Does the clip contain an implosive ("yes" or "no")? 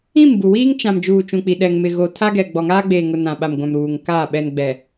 yes